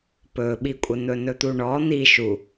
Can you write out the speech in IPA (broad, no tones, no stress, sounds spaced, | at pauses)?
p ɵ ɓ i kʷʼ ə n̪ ɵ n ɵ t̪ u ɳ ɔ n̪ i ʃ u